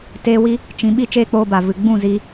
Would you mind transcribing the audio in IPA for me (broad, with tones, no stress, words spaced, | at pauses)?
teː˦wi˦ | t͡ʃĩ˨˦ ɓi˦t͡ʃeː˦k͡poː˧ba˨ vɨ˨ɡ͡bũ˦˨zi˧